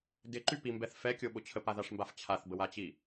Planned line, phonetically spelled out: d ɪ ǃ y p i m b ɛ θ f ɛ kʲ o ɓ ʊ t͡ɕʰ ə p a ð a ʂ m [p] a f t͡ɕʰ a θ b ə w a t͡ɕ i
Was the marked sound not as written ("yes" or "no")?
yes